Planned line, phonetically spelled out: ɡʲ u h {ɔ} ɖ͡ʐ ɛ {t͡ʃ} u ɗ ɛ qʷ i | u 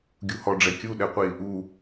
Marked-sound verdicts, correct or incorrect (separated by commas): correct, incorrect